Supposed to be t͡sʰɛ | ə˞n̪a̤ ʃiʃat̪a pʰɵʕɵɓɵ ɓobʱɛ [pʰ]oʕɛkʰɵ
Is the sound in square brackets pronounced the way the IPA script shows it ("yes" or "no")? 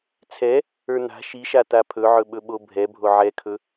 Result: no